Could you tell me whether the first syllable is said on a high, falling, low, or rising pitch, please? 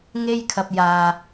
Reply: high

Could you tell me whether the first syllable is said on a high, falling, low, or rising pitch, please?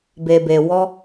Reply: low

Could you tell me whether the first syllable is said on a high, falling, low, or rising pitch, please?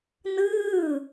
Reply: falling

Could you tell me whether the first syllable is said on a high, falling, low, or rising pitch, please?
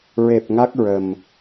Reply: low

